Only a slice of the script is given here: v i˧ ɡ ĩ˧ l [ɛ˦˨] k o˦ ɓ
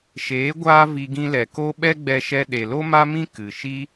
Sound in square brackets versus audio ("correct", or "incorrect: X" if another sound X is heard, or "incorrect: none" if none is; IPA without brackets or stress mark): incorrect: ɛ˨